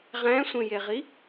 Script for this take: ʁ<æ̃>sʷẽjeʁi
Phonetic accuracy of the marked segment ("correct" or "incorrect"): correct